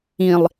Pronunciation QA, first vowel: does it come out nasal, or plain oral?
nasal